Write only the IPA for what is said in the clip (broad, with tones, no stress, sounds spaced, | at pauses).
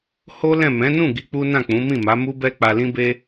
h o˦ l ɛ̃˦˨ m ɛ̃˨˦ n ũ˦˨ ɡ i˧ k͡p u˦ n ã˦˨ k͡p ũ˨˦ m ĩ˦˨ m a˨˦ m u˦ b ɛ˦ k͡p a˧ l ĩ˦ b e˦